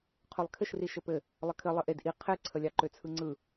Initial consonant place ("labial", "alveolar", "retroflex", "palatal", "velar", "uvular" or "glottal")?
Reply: uvular